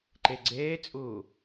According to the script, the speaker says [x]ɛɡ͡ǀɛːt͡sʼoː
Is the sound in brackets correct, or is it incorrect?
incorrect: ǃ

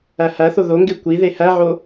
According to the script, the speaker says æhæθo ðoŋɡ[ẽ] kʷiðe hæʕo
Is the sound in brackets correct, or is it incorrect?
incorrect: e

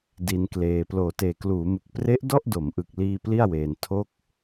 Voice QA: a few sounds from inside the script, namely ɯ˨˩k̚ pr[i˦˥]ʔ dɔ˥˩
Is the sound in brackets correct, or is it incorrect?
incorrect: e˦˥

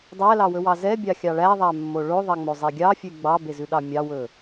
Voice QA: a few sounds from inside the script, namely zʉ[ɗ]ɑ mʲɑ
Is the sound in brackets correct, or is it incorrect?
correct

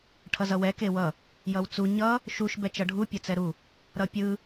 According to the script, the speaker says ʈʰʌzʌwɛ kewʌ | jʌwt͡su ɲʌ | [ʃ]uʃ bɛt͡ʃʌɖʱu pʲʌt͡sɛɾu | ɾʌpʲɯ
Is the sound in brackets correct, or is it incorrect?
correct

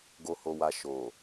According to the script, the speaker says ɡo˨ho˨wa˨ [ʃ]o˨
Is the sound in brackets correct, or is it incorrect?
correct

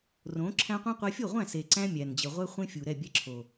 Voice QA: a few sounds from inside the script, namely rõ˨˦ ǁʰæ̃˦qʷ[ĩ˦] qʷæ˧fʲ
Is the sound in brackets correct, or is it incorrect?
correct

